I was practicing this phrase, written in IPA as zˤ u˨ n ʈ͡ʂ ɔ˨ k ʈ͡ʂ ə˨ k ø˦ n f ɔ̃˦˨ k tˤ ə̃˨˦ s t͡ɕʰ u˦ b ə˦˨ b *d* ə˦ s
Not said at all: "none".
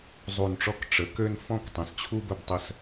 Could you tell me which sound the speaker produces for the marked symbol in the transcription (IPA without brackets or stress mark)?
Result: tˤ